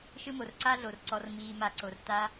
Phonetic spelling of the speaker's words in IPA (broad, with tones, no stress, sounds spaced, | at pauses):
ʃ ɯ˦ m o˩ r ǀ a˦ ɮ o˩ r ǀ ɔ˨ r m iː˨ m a˨ ǀ o˩ r t a˦